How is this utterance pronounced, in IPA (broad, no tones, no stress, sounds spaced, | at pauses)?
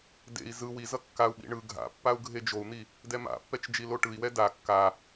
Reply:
d ḛ i̯ z ɯ w i z ʌ kː a u̯ ɓ ḭ ɳ ɯ ɡʱ a̰ pː a u̯ ɡʱ e d͡ʒ o u̯ n̪ i | d ɛ m a̰ pː ɛ t͡ʃ d͡ʒ i l o ʈ ɯ i̯ w ɛ d a kː a